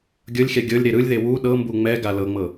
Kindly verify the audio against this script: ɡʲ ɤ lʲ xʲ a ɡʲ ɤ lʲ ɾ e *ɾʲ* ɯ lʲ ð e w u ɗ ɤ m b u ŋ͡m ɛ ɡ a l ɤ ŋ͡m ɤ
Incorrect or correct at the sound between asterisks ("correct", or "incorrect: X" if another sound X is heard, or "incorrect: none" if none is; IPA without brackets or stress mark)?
incorrect: ɾ